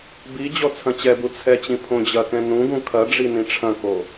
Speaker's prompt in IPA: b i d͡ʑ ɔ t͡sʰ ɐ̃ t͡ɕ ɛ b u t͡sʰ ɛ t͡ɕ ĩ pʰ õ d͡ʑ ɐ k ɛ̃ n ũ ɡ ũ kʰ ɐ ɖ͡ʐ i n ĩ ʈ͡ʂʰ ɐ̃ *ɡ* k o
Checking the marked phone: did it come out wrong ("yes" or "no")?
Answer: yes